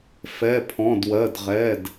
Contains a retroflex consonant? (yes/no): no